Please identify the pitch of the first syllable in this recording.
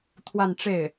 falling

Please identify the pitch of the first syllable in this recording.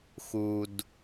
low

